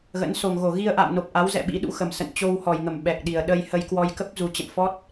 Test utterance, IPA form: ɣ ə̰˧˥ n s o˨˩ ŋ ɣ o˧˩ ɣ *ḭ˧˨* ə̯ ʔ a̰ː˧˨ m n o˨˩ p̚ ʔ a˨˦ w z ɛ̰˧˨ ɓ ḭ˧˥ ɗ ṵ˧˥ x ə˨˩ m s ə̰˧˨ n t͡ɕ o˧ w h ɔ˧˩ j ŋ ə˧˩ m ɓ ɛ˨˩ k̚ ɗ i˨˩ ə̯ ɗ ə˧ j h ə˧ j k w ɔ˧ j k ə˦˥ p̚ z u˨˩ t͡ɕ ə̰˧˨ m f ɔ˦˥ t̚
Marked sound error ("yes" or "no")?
yes